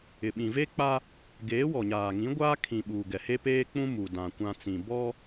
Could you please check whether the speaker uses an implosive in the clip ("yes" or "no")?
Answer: yes